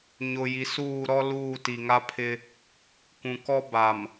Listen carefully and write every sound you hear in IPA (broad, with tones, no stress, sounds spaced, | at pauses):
ɲ ʊ˨ j i˨ s uː˦˨ ɾ ɔ˦ l uː˦˨ t i˨ ŋ a˦ pʰ ɪ˦ | kʷ ũ˨ k ɔ˦ b a˨ m